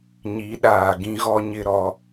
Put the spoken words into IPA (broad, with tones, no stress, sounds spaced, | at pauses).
ɲ i˨˦ ɗ aː˨ ɡ ĩ˦ ɣ ɔ˦ ɲ ɪ˦ ɾ ɔ˦